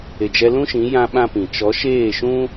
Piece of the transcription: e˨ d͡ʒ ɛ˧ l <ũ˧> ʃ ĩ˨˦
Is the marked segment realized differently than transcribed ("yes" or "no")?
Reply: yes